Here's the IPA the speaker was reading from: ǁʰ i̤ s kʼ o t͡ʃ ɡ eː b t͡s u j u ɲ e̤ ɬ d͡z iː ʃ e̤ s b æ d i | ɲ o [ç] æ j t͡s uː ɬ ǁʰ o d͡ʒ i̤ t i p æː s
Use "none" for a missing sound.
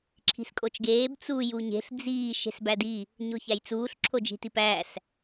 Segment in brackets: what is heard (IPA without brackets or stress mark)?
ç